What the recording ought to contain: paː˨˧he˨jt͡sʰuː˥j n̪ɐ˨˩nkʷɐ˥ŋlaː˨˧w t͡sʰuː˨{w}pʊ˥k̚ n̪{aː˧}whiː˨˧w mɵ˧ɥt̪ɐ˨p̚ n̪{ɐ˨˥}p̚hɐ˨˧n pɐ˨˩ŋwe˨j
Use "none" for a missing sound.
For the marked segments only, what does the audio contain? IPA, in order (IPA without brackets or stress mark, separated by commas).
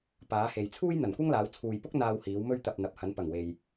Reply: j, aː˧, ɐ˨˥